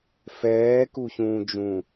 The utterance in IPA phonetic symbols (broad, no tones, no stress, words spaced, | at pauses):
fɛːkuçũːd͡ʒũ